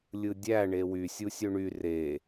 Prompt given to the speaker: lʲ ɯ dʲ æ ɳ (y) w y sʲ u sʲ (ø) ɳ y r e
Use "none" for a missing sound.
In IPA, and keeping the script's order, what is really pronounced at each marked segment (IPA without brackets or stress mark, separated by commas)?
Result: e, ø